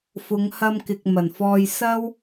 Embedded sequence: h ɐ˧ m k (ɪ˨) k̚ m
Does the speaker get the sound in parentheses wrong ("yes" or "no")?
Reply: no